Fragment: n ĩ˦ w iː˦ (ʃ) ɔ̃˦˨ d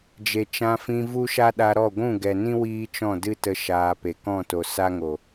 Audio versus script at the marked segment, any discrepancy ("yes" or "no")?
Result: yes